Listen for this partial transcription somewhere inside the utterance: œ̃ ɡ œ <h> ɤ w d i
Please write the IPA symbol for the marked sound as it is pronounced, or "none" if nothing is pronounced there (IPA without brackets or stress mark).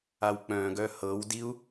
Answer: h